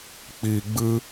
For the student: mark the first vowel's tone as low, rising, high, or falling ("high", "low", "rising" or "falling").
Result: low